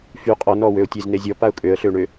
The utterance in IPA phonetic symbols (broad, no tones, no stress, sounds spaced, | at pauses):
f y qʼ ɔ n ɔ w ø ʊ̯ tʲ e z n e zʲ ɔ p a ʊ̯ kʼ ø ə̯ ɬ ø ɳ ø